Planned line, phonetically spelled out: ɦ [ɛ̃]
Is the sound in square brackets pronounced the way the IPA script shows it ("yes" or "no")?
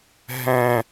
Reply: yes